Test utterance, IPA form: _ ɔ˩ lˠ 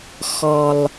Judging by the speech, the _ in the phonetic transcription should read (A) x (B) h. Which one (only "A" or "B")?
A